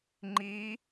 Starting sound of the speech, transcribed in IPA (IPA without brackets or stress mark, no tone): ŋ͡ǃ